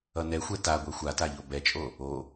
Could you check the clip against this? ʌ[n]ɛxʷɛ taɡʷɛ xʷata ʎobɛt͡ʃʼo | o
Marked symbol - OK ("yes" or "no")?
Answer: yes